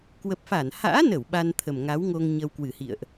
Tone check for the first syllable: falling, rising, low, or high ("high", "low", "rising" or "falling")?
low